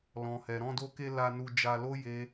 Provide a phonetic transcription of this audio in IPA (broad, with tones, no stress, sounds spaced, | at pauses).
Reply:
l ɔ̃˨ h ɛ˨ ɾ ɔ̃˧ d o˧ k e˧ l a˧ n u˧ d͡ʒ a˧ l o˦ j e˦